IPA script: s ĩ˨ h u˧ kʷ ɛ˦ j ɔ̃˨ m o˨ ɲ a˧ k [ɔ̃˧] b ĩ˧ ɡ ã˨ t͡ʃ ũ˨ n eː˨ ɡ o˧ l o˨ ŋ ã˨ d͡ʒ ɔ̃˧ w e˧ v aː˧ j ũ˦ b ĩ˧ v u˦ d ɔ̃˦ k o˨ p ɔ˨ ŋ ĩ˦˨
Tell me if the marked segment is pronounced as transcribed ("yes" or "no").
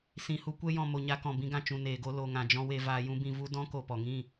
no